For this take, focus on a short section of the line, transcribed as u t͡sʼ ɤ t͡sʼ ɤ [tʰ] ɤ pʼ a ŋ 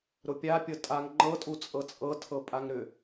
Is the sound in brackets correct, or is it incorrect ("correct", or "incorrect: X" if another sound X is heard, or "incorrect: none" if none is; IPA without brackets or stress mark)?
correct